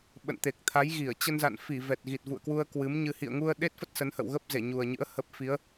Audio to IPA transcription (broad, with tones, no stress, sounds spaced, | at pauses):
ɓ ə̰˧˨ n t̪ e˨˩ k̚ t̪ʰ a˨˦ j ɣ i˧˩ ə̯ t͡ɕ ə˧ n z a̰˧˨ n f i˧˩ v ɛ˨˩ t̚ ɣ i˨˩ t̚ v ṵ˧˨ ə̯ k w u˧ ə̯ k w ɨ˨˦ m ɲ ɨ˧ h ḭ˧˨ ə̯ ŋ u˧ ə̯ ɗ e˦˥ t̚ f ə˦˥ t̚ s ə˨˦ n h ə̰˧˨ w ɣ ə˦˥ p̚ z e˧˩ ɲ u˨˩ ə̯ ɲ ɨ̰˧˥ ə̯ h ə˦˥ p̚ f i˨˦ ə̯